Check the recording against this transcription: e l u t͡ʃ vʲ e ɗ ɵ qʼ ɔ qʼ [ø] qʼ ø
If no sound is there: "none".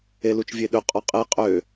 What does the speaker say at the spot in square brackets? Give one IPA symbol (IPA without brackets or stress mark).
e